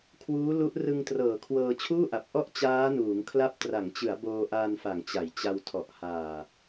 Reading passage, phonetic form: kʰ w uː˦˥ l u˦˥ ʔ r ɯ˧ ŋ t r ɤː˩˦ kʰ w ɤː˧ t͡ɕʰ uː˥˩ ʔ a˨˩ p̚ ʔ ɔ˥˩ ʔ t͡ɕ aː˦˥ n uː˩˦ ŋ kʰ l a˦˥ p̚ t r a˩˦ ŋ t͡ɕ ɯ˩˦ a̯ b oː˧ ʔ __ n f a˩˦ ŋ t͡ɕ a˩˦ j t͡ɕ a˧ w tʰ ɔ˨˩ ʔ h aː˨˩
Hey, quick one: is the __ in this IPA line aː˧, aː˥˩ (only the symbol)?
aː˧